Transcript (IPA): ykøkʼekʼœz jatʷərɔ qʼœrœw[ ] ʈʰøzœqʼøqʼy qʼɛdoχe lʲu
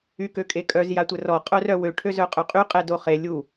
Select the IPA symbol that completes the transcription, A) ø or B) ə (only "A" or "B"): A